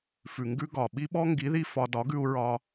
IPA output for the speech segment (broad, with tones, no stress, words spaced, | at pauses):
fʉ˨ŋɡʉ˧ ɡɒ˨ ɓi˧ɓɔ˧ ŋɡi˨˦ði˧ fɒ˧ dɒ˨˦ɡʉ˧u̯ ɹɒ˧